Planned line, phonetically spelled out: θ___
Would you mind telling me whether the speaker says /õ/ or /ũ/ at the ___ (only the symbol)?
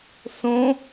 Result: õ